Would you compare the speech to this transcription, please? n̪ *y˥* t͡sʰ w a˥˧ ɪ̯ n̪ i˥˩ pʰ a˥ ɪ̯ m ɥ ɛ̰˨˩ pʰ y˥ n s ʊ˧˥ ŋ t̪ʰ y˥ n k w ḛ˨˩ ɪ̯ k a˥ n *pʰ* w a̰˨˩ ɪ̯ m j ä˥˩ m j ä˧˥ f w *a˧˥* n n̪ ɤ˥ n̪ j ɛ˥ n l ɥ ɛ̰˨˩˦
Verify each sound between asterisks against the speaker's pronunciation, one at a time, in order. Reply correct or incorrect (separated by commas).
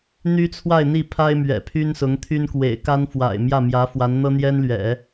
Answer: correct, incorrect, correct